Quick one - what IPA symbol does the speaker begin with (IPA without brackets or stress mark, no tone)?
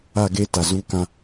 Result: a